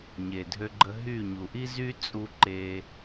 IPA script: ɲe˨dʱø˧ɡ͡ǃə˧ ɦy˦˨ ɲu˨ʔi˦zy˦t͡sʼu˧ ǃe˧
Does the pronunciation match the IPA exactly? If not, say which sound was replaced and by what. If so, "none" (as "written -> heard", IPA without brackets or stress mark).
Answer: none